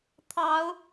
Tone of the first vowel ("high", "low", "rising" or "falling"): rising